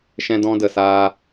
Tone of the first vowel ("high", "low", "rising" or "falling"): high